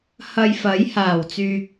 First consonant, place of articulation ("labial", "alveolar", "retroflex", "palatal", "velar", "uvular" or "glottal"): glottal